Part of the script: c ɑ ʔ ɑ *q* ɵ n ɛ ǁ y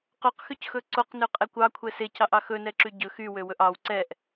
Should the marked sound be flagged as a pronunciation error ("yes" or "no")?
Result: yes